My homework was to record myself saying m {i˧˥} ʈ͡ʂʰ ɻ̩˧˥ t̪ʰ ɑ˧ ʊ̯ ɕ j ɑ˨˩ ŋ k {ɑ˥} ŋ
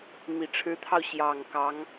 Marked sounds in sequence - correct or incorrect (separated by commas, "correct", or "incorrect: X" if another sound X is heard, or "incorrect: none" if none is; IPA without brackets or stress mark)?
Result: incorrect: i˨˩, incorrect: ɑ˧˥